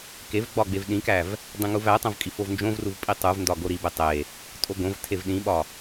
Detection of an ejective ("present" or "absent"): present